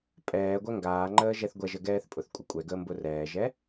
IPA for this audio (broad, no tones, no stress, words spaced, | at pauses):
pʼɛː ɡʷɛŋɡaːŋ͡ǃəː ʒɛθɡʷɛʒə ɡɛːθpʼʊθkʷʼə kʷʼɛɡəː mbʊrɛːʒɛ